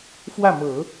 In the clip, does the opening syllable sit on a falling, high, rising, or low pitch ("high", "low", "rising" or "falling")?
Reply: falling